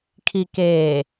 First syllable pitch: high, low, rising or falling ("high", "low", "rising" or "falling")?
low